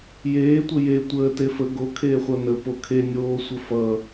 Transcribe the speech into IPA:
j eː tʷ ə j e tʷ əː t e f ə ɡ o kʰ eː χʷ ʌ n ə p o kʰ e nʲ oː sʷ ə f ʌ

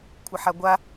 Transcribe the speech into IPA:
kʷʰ ɪ ħ a ɡʷ a

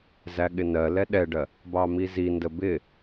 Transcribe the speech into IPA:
z æ ɠ ɪ n ɜ l ɛ ɗ ɛ ɖ ɜ | b ɑ m i z i n d ə b ɪ

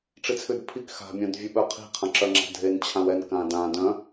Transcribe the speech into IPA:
ʈ͡ʂ i t͡sʰ ʉ d pʰ i k x a̤ mʲ œ̃ d vʲ ʉ ɓ œ qʰ i̤ qʰ ã ǁ œ ŋ͡ǁ a̤ dʱ e n t͡ɕʰ ã w ɛ n k ã d ã d œ̃

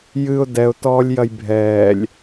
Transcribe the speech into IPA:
j ɨ ʊ̯ d ɛ ʊ̯ t ɔː lʲ j ɐ j bʱ ɛː lʲ

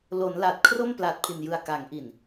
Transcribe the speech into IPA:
l o˩˦ n l a˨˩ t̚ kʰ r o˥˩ m p l aː˨˩ t̚ pʰ i˨˩ n j ɯ˨˩ a̯ k a˩˦ ŋ ʔ i˨˩ n

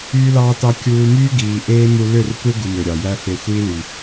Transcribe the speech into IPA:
yː˧ l ɑː˧ t ɑ˧ kʲ uː˧ m yː˦ ɡ iː˨ ʔ eː˦ m u˧ l ø˦˨ r tʷ e˦ ɡ u˧ m ø˨ ɾʲ ɑ˨ j æ˦ f e˧ xʷ iː˦ l y˨

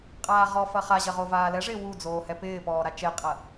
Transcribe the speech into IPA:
qʼ aː ʁ ɔ f ɐ χ a ʑ ɐ ʁ o v aː l ɛ ʐ ɪː w u d͡z oː h ɛ p ɪː p ɔː ɾ a t͡ʃ e qʼ ɐ

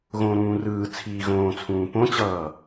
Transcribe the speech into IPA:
ɣ õ ɾ ũː r ɯː t͡sʰ iː ɣ õː t͡sʰ ũː p õ t͡ɕ ʌː

